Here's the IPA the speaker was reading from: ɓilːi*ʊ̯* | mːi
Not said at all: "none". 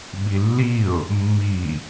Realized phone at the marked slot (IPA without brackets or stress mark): ʊ̯